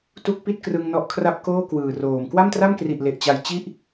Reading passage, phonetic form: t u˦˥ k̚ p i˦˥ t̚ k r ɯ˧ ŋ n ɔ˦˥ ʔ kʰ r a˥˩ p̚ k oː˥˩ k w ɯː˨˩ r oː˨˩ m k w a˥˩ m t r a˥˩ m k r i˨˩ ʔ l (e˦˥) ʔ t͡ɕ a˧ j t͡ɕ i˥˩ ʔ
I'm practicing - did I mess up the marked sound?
yes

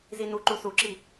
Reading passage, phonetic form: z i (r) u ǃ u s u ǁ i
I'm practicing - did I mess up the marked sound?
yes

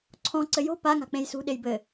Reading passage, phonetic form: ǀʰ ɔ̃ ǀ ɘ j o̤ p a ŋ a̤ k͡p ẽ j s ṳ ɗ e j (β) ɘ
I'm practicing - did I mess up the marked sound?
yes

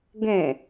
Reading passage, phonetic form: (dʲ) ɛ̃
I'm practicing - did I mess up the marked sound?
yes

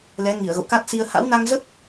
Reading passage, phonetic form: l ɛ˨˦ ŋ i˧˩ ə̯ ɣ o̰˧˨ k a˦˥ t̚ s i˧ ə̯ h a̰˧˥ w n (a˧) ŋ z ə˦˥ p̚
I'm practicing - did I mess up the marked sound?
no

